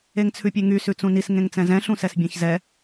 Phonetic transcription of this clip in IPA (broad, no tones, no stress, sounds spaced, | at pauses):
e ŋ t͡sʰ ʉ pʲ e ŋ y s ʉ t͡s ũ n i s ŋ ẽ ŋ t͡s ɛ̃ z ɛ̃ ɬ ũ s ɛ s bʲ ẽ ç z ɛ